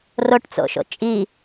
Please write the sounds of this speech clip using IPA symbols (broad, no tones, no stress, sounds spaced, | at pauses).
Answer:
r o ʈ t͡s o̰ ʃ o̰ t͡ʃʼ i